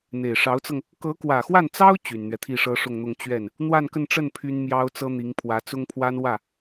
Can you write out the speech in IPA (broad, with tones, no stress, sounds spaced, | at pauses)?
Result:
n̪ e˨˩ ɪ̯ ʂ ɑ˧˥ ʊ̯ t͡s ɤ˧ ŋ | k ɤ˧˥ k w ä˨˩ x w a˥˩ n t͡s ɑ˥ ʊ̯ t͡ɕ y˨˩ n n̪ ɥ ɛ˦ t̪ʰ i˥˩ ʂ ɤ˥ ʂ ʊ˥˧ ŋ n̪ ʊ˥˧ ŋ t͡ɕ ɥ ɛ˥˩ n | n̪ w a˥˧ n k ə˥˧ n ʈ͡ʂ ə˥˩ n pʰ y˥ n m j ɑ˥ ʊ̯ t͡s ɤ˥ n̪ i˧˥ ŋ pʰ w ä˧˥ t͡s ʊ˥ ŋ pʰ w a˥ n w ä˥˩